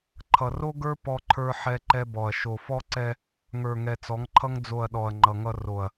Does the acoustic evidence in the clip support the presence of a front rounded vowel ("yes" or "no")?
no